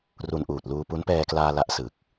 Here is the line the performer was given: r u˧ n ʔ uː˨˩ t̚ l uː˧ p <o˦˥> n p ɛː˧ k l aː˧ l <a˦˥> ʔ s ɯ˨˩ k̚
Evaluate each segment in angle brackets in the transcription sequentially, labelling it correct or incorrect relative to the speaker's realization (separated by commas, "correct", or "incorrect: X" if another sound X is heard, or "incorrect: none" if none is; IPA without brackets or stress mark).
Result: incorrect: u˦˥, correct